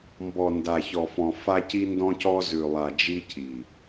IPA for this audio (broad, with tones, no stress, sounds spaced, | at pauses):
m b ɔ˨ n d a˨ ç ɔ˨ f ɔ̃˨ f a˦ c i˦ n d ɔ̃˦ c ɔ˦ z ʉ˨ lˠ a˨ d͡ʒ i˦ cʰ i˨